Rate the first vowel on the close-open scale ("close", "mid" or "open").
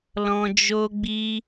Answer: mid